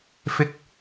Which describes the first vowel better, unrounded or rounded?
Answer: unrounded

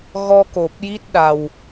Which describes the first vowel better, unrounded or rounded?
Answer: rounded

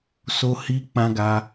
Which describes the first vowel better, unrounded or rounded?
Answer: rounded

